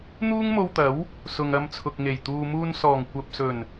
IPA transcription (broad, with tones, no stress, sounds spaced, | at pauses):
n̪ uː˥ ŋ m o˧ w t̪ ɐ˨˥ w | s ʊ˨ ŋ ɐ˧ m t͡sʰ ʊ˨ k̚ ŋ e˨˩ j t̪ uː˨ m uː˧ n s ɔː˨˩ ŋ kʷ ɐ˨ p̚ s ɵ˨˩ n